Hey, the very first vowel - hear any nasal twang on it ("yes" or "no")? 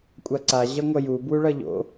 no